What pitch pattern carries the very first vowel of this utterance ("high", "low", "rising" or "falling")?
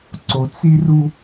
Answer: low